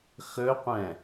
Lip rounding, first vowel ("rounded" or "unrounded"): rounded